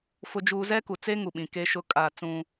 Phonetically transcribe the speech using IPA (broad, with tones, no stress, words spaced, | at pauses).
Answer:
fʊ˦d͡ʒuː˦ zɛ˦ku˨t͡se˦ ŋu˨ɓĩ˨ ke˦ʃʊ˦kʼa˦˨ t͡sũ˦